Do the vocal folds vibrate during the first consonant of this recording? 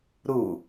yes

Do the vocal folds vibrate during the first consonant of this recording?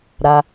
yes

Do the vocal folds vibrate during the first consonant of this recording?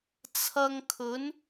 no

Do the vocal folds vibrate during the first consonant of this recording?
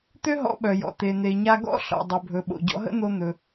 no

